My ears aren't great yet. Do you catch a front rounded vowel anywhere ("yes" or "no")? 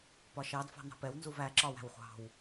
no